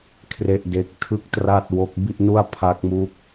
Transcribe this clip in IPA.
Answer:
kʰ r e˥˩ ʔ d e˦˥ k̚ tʰ ɯ˥˩ k̚ t r a˥˩ t̚ w o˦˥ k̚ b i˥˩ ʔ n u˥˩ a̯ pʰ a˦˥ k̚ m uː˦˥ k̚

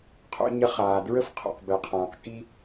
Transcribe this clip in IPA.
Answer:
qʰ o̰˧ ɲ ə˧ χ aː˩ d ɹ ə˥ f qʰ o̰˩ q b ɛ˩ qʰ ãː˩ q k i˥

